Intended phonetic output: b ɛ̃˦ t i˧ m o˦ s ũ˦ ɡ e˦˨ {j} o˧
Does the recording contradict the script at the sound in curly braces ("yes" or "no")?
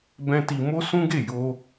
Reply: no